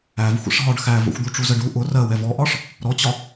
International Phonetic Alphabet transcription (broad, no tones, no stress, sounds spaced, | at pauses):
æ v xʷ ə̰ ʂ ɦ ɒ ɖ x æ v ə̰ xʷ d̪ u ʈ͡ʂ u z ə ɖ u ʔ ʊ r ɜ w ɛ v ɔ ʔ ɒ ʂ | ɾ ɔ t͡ɕ ɒ